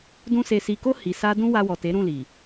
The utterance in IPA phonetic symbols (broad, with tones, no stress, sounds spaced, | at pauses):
d ũ˧ s e˨ s i˨ k o˧ h i˨ s a˧ d ũ˦ w a˧ w ɔ˨ t e˨˦ ɾ ũ˦˨ l i˨